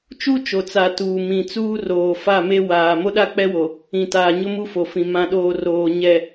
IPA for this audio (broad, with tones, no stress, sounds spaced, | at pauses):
t͡ʃ u˦ t͡ʃ o˨ t͡s a˨ t uː˨ m ĩ˨ t͡s uː˦ r oː˨ f a˦˨ m e˦ w aː˨ m o˦ ɗ a˦ k͡p ɛ˦ w o˨ | ĩ˨ t aː˨ ɲ ʊ˦ m u˦ f o˨ f ĩ˨ m ã˨ ɗ oː˨ r oː˨ ɲ ɛ˨